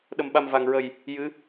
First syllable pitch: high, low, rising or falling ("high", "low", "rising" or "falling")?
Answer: low